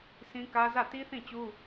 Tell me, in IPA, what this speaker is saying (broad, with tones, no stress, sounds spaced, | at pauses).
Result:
s ĩ˦ k ä˦ z ä˦˨ t i˦ θ ĩ˦˨ t͡ɕ u˦